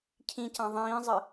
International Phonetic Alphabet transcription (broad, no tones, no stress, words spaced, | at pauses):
cʰĩcã ðˤĩːzˤɘ